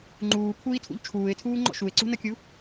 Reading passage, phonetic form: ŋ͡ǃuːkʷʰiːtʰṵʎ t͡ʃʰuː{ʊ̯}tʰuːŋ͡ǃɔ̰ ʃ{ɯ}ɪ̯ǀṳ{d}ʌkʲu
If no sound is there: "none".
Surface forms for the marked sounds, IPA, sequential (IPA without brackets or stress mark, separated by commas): ɪ̯, u, n